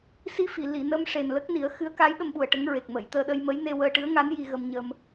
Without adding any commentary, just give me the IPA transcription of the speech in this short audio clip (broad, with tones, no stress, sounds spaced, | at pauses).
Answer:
s i˧ f i˨˩˨ l i˨˩˨ n ə˧ m ʂ e˨˩ n l ə˦˥ k̚ n i˨˩˦ ə̯ x ɨ˧˥ ə̯ k a˧˥ j ɗ ə˧ m ɓ u˨˩ ə̯ ʈ ə˧˥ ŋ ɹ e˨˩ k̚ m ə˨˩˨ j t̪ əː˧ ɗ ə˧ j m ə˧˥ j n e˧ w əː˧ ʈ ɨ˧˥ ə̯ ŋ a˧˥ n j i˧ ɣ ə˧ m ɲ ə˧ m